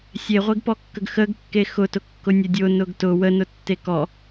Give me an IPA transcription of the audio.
sʲ e ʁʷ e ɡ p ɔ kː ə ɡ x ə ɡ kː e x ʊ t ʊ kː ʊ nʲ ə dʲ ʊ n ʊ ɡ t ʊ w ə n ʊ tː e k ɔ

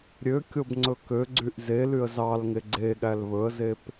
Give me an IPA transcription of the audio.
ɾʲ ø kʲ o b ŋ͡ǀ ɵ k ø ɡ͡ǀ y ʔ z e l y ə̯ z ɑ l ŋ e ɡ͡ǀ e ɠ æ l β ɵ ə̯ z e p

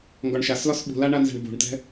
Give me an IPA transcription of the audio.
ŋ ɡ ɒ ɳ ʃ a s l ɒ s ɓ ṳ l a ɳ a n z ɛ̤ ɳ b ṳ ɳ t ɛ̤

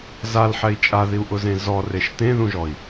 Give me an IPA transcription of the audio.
z a l ħ ɛ i̯ t͡ʃʼ a ð i u̯ ʔ ʊ z ẽ z ɔ r e ʃ t ẽ ð ũ ʒ ɔ i̯

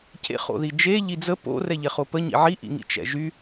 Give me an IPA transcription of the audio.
c ḛ χ o̰ ð i d͡ʒ e ʎ i d͡z ə p o̰ r ɛ ʎ ɛ χ o p ə ɲ ḭ ʕ i ʔ ḭ ŋ ḭ t͡ʃ ɛ̰ ʒ y

